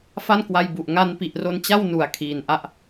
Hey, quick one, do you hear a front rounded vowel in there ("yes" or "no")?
no